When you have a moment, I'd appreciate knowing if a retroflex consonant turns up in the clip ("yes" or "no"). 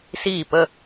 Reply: no